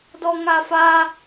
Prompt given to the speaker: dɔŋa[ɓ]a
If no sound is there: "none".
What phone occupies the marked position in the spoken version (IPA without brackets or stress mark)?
f